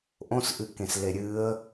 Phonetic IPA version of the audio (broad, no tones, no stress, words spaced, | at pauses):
ʔõsʔɨkẽs leɾʲɨə̯